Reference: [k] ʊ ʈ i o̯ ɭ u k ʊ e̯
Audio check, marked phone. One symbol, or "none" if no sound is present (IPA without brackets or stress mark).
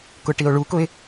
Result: k